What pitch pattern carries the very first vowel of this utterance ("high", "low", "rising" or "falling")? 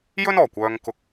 high